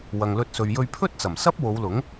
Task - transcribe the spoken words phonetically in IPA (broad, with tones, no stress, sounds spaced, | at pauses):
w ɐ˨ ŋ l ɵ˧ t̚ s ɵ˨ ɥ j ɵ˧ ɥ pʰ ɵ˥ t̚ t͡s ɐ˨˩ m s ɐ˥ p̚ w o˨˧ w l ʊ˨˥ ŋ